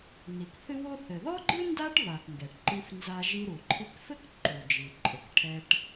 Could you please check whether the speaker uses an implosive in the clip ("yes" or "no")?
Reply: no